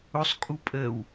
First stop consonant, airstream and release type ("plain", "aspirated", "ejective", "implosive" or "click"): ejective